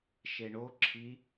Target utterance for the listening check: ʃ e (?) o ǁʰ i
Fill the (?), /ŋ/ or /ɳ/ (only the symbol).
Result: ɳ